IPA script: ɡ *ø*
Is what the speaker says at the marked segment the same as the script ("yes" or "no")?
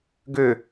yes